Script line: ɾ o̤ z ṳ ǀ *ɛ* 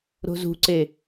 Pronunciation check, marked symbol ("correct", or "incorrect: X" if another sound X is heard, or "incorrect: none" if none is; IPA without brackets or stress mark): incorrect: e